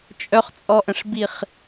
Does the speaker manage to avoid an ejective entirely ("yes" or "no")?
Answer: no